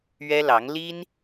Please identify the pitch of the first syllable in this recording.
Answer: high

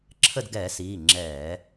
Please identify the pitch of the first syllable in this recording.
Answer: falling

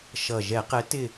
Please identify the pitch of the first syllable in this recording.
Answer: low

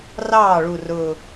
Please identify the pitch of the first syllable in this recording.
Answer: falling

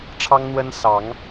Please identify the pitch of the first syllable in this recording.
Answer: high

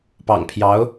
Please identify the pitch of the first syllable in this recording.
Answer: low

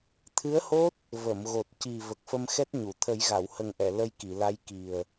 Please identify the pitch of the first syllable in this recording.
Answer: rising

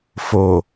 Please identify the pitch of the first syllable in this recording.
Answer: low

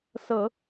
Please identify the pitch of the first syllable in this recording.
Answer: low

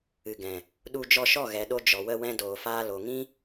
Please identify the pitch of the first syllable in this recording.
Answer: low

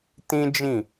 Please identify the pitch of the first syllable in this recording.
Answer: high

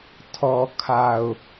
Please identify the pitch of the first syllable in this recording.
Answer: low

